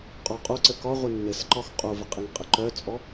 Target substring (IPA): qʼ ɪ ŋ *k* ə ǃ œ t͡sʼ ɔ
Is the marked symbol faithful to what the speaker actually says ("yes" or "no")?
no